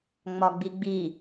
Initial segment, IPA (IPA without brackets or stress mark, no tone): ŋ͡m